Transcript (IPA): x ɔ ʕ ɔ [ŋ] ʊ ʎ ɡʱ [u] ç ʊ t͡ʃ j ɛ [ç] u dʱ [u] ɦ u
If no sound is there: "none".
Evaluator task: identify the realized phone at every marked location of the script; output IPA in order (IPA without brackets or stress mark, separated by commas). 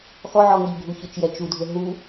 ŋ, u, t͡ʃ, ʊ